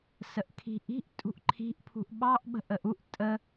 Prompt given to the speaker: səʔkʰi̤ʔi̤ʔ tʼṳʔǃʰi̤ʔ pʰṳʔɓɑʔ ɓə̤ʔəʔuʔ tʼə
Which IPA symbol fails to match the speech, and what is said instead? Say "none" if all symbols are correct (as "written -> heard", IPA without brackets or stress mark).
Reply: none